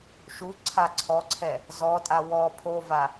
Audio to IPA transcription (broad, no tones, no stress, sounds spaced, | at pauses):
ʃ u ǀʰ a ǀʰ ɔ ǀʰ ɛ | z ɔ tʼ a w ɔ pʰ o v a